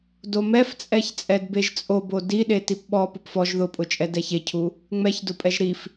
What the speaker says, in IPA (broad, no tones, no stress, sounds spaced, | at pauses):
d o m ɛ f t͡sʼ ɛ ç t͡sʼ ɛ d b e ʒ t͡sʼ o b o d i ɗ e t i p ɓ ɔ p ʊ p f ɔ ʒ ð ʊ pʼ ʊ t͡ʃʼ ɛ d ɛ ç e cʰ u | ŋ͡m ɛ ç d ʊ pʼ ɛ ʒ ɾ i f